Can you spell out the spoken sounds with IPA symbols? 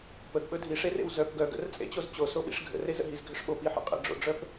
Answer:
p ə ɡ ɓ ɵ dʱ i ʂ e r ḛ w z œ p ɡ œ ɡ ə̰ r t͡sʼ ḛ t͡ɕ o z t͡ɕ o s o ɓ ḭ ʂ ɡʱ ə̰ r e z ə̰ ɦ i z ɡʱ ʏ ʂ ɓ o p i ħ ə̰ qʼ ḛ ɖ͡ʐ o̰ ɖ͡ʐ œ p

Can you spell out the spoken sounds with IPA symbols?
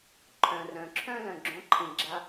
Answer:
ǃʰ œ̃˩ r œ̃˩ ǁʰ œ̃˧ l œ̃˩ ɡ͡ǁ õ˩˧ ǃʰ ĩ˩ ɡ͡ǁ a˧

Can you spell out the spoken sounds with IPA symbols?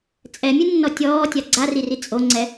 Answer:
t͡sʼ ɛ mʲ ɯ nː ɔ tʲ ɔː tʲ a ɡ͡ǀ a r i r i t͡sʼ o ŋ͡ǀ ɛ

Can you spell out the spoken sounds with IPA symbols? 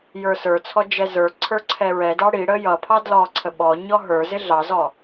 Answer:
j ə˞ s ə˞ t͡sʰ ɔ d͡ʒ ɛ z ə˞ ǀʰ ə˞ ǀʰ ɛ ɹ ɛ d ɑ ɽ i ɽ ə j ʌ pʰ ɑ d l ɔ ǀʰ ə ɓ ɔ ɲ ɔ ɦ ə˞ z ɪ ɮ ɑ z ɔ

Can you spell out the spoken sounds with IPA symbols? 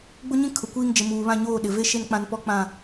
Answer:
ɡ͡b ʊ˦ ɲ ĩ˦ kʰ ʊ˨ kʷ iː˦ ŋ d͡ʒ ɪ˨ m uː˨ β ã˦˨ ɲ oː˦˨ ɗ ɪ˨ v e˦ ʃ e˦ n k͡p ã˦ n p ɔ˦ k͡p ã˦˨

